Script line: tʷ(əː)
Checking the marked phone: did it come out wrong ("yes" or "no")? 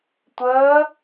no